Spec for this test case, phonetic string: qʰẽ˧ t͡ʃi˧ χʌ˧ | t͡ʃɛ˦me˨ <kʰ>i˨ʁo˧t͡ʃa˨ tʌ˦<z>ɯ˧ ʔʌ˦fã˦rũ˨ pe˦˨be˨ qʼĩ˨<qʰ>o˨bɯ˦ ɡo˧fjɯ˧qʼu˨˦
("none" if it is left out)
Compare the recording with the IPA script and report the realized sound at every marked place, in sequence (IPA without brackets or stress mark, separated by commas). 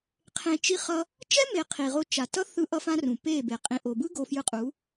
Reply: qʰ, θ, ʔ